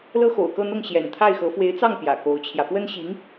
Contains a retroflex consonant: no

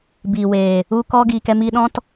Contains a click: no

